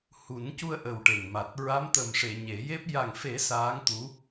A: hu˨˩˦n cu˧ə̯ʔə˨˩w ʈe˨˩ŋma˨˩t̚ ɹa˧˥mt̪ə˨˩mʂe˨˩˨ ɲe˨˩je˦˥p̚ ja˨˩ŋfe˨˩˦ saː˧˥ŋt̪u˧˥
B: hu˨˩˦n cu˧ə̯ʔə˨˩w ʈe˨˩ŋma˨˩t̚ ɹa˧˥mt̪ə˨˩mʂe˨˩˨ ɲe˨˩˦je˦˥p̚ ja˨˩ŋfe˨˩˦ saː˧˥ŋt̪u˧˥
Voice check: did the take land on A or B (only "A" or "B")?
B